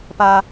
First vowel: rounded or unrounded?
unrounded